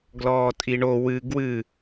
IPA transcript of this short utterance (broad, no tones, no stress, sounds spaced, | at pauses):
ɡ l ɔː tʼ i ɳ o w ɨ ɡ w ɨ